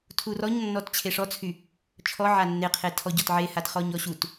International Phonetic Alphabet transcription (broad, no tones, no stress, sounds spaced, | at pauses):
tʰ u r ɔ ɲ nː ɔ t t͡ɕʰ e ʂ ɔ t͡sʰ y | t͡ʃʰ ɔ ʕ a nː e qʰ e tʰ ɔ ɟ ɔ t ʕ e h a t χ ɔ ɲ ɔ ɕ u t